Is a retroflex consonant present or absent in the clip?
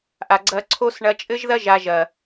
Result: present